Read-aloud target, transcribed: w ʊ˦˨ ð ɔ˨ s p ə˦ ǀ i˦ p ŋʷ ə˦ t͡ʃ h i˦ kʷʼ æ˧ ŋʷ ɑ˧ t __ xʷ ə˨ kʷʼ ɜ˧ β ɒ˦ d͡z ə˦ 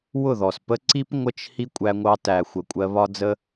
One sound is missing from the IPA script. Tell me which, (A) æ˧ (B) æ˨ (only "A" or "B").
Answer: B